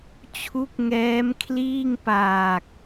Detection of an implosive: absent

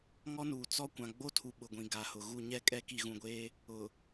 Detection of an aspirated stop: present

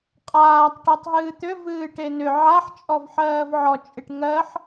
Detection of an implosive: absent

